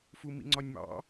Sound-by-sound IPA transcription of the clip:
fumḭŋ͡ǀɒnʲmɑ̰

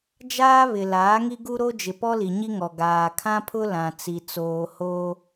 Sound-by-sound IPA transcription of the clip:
d͡ʒaː˦βɪ˨ laː˨˦ŋi˦ɡu˦ ɾo˦d͡ʒɪ˨pɔ˦ li˨ɲi˦ŋɔ˨ ɡaː˨kʰã˦pʰʊ˦ lã˨t͡si˨ t͡soː˨hoː˦

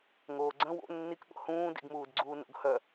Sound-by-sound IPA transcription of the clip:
ŋoːɡ͡ǀə̃ wo̰ nːikɠo̰ hũːdḭɡmuːd ɡ͡ǀuːno̰ɡhœ

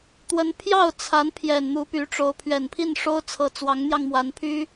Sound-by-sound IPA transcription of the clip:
t̪wə˧˥npʰjɑ˥˩ʊ̯t͡sʰa˧˥n pʰjɛ˨˩nn̪u˧˥py˧˥ʈ͡ʂo˧˥ʊ̯ pʰɥɛ˨˩npʰi˥˩n ʂo˥ʊ̯t͡sʰɤ˧˥t͡swɑ˧˥ŋn̪jɑ˧ŋ mwa˧˥npʰy˥

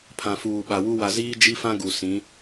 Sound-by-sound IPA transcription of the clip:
pʰã˨fuː˨ɓa˨wu˦ wa˨ziː˦d͡ʒi˦fã˦ ɡu˨sĩ˨˦

